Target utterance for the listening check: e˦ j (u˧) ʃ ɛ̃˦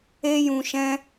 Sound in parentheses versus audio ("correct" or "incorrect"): incorrect